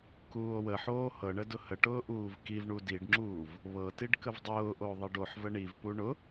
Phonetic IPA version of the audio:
kuːo̯wəħoː hɤɳə dʊhəʈʊː ʔuːvkivɳu diɖŋ͡ǁuːv | βɤtiɖ kəvdˤʊːʔo ðˤiɖoħvə ɳivpu ɳʊ

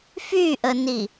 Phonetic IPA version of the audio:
fyʔəni

